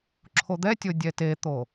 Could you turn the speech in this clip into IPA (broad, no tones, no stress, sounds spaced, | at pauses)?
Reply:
ǁʰ o d̪ ɛ tʲ o dʲ ɛ t e t̪ o